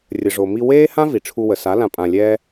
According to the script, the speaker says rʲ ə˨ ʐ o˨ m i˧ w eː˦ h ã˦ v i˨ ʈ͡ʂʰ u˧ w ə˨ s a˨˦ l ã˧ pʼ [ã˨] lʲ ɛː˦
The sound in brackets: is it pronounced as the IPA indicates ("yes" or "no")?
no